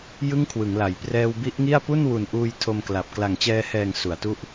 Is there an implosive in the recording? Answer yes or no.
no